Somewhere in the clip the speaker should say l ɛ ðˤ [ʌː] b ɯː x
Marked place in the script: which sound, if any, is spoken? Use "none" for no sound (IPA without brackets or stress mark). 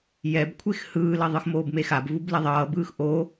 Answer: ʌː